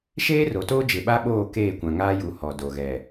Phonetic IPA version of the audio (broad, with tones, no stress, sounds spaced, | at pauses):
ʃ eː˦ r o˨ t oː˦ d͡ʒ ɪ˨ ɓ a˦ ɓ oː˦˨ k eː˦˨ kʷ ã˨ ŋ aː˦ j u˨˦ h ɔ˨ d o˨ ɣ ɛ˨